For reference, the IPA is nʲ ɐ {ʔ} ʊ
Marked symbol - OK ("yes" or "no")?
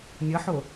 no